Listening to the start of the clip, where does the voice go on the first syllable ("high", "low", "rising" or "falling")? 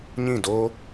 falling